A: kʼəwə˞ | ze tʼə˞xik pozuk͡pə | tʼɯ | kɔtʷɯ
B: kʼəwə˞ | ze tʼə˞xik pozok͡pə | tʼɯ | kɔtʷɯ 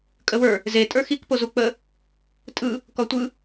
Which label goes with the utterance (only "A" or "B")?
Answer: A